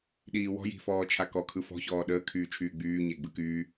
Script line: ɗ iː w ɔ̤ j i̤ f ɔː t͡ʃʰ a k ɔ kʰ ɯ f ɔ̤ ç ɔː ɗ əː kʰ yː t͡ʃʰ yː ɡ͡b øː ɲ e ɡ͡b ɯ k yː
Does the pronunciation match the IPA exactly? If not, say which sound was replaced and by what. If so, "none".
øː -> yː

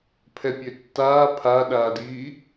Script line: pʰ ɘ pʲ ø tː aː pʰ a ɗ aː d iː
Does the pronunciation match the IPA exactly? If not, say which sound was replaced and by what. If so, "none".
ɘ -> ɛ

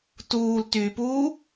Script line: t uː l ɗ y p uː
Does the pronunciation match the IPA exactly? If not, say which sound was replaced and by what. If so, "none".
ɗ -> t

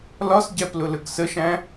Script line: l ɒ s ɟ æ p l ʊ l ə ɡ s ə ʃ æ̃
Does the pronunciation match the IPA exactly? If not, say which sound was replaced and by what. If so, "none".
none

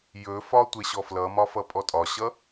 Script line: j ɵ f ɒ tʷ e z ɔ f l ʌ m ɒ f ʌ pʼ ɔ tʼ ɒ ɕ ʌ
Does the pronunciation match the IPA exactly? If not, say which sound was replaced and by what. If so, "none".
z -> ɕ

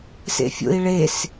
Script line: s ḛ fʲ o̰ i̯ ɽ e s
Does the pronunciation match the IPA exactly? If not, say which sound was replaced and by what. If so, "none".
ɽ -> ɭ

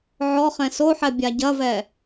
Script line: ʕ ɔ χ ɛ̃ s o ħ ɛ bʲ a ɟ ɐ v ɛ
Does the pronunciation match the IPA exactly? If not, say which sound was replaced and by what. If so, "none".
none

